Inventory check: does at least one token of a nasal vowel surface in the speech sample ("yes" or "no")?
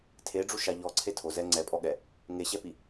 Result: no